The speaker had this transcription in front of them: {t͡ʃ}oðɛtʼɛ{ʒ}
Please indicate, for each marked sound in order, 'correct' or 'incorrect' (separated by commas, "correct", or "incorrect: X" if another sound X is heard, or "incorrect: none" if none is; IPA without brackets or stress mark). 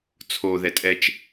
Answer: incorrect: t͡sʰ, incorrect: t͡ʃ